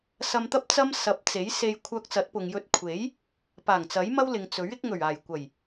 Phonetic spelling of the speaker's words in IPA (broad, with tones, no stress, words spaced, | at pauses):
sɐ˧mt̪ɐ˥p̚ t͡sɐ˥msɐ˨˥p̚ t͡se˨˥jse˧j kʷʰœː˧k̚t͡sɐ˨˥t̚pʊ˨ŋjɵ˧t̚ kʷʰe˨˥j | paː˨˩ŋt͡sɐ˨˥jmɐ˥w lɪ˨ŋt͡sɵ˨˥ɥ ɪ˨˥k̚ŋɵ˨˩ɥaː˨˩jkʷɐ˨˩j